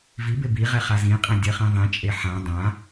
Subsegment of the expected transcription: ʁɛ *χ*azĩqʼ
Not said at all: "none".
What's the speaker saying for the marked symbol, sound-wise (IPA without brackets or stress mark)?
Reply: χ